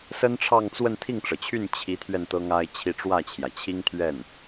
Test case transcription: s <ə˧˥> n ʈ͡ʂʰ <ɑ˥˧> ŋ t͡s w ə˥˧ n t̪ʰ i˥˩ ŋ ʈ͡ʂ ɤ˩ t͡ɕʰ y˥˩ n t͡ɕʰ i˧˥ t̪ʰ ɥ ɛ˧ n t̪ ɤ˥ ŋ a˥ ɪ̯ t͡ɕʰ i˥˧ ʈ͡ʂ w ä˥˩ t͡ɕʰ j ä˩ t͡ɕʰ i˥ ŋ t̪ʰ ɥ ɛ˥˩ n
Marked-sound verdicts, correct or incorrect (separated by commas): incorrect, correct